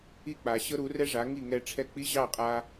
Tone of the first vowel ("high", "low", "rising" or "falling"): falling